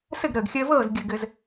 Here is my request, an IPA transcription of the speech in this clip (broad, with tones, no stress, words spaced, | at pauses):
sɘ˥˩ɡɾəː˩ɡxʲəː˧vɤː˥˩z ɡʲə˩ ɡɘ˩z